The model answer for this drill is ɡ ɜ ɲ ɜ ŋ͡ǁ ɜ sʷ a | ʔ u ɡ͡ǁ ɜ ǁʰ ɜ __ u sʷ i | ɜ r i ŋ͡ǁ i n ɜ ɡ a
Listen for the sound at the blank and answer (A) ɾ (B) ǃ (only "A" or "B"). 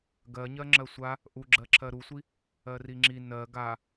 A